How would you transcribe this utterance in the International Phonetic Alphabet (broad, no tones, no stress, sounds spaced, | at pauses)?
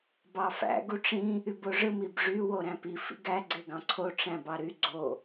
b ɑ f æ̰ ɡ u ʈ͡ʂ ĩ | y b o ʐ ɯ m i b ʐ y w o ɾ æ̃ p i f ḭ ɡ æ ɡ͡ǀ e ɡ ɑ̃ ǀʰ o ʈ͡ʂ æ̃ b ɑ ɾ y ɡ͡ǀ o